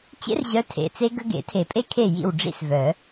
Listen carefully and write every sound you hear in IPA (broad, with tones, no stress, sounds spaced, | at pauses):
t͡ɕ ḛ˦ r ʑ œ˨˦ tʰ ḛ˨˩ t͡s e˦ ɡ ə˦ ɡ ḛ˨˩˦ tʰ e˨˩˦ pʼ e˦ kʰ e˥˩ j ḭ˥˩ w ɖ͡ʐ ḭ˦ s v œ˨˩˦